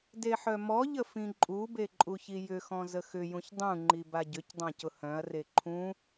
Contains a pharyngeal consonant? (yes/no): yes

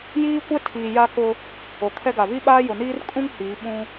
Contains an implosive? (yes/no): yes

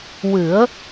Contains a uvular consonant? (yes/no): no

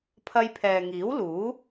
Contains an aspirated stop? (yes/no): yes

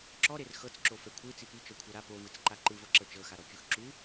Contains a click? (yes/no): yes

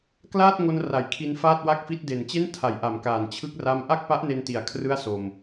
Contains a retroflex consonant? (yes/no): no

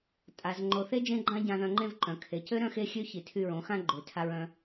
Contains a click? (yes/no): yes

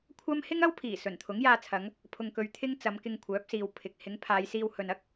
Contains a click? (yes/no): no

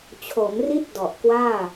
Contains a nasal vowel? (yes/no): no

